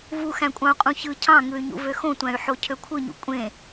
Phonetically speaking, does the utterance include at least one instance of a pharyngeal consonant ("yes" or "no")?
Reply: yes